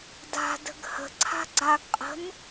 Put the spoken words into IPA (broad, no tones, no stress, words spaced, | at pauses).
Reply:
da̤də̤ɡ hə̤ǀʰa̤ ɡ͡ǀaɡqʼə̤n